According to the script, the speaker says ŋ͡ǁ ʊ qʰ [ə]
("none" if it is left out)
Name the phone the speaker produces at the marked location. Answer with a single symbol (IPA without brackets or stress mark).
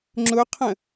ə̃